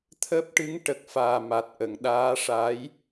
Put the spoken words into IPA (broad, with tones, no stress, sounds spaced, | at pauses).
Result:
t̪ʰ əː˦˥ p̚ ʈ ɨ˧˥ ŋ ʈ ə˨˩ k̚ f aː˨˩ m a˨˩ t̚ ʔ ə˨˩˨ ŋ ɗ aː˧˥ ʂ aː˧˥ j